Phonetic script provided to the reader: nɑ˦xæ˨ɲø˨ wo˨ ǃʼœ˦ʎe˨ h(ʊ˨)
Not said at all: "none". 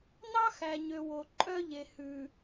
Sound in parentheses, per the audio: ʉ˨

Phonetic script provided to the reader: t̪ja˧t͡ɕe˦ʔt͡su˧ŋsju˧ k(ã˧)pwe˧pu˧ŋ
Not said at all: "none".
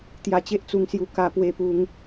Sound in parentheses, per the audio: a˧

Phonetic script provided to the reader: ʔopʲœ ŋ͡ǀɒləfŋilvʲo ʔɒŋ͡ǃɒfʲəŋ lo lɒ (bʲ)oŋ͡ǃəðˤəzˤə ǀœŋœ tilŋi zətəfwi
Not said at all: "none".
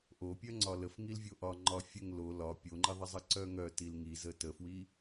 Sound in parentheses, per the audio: pʲ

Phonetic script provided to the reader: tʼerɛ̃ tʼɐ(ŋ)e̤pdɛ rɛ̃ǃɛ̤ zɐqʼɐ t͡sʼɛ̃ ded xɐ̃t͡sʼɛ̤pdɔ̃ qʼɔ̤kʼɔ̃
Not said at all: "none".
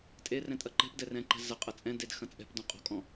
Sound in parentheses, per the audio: ǃ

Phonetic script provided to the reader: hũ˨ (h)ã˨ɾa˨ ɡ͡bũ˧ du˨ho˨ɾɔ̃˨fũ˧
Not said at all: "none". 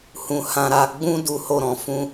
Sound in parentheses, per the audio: h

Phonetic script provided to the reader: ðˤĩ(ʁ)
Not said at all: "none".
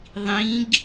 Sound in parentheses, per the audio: ɡ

